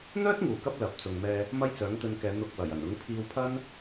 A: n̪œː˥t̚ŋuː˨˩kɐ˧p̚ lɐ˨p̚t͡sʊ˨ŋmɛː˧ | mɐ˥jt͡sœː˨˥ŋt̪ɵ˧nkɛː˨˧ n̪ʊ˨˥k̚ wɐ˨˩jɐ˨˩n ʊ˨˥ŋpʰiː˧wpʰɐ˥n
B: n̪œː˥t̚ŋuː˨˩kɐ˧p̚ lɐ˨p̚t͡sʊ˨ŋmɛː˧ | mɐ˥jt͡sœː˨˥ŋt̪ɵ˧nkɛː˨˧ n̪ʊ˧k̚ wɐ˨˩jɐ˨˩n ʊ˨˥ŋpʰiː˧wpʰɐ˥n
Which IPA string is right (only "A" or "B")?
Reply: B